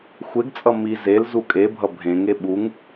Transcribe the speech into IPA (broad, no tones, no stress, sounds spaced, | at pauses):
xʷ e ɡ t͡sʼ ʌ m i z e l z u kʼ e bʱ ʌ bʱ ẽ ŋ e ɓ u ŋ